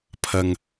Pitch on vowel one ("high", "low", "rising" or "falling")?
low